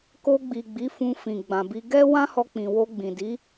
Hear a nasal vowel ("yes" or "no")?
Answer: yes